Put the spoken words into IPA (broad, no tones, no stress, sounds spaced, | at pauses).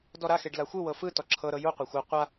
d ɔ ɾ a x e ɖ l a xʷ ɯ w ɤ f ɯ t ɔ ǁʰ ɤ ɾ ɤ j u qʷ a xʷ a qʷ a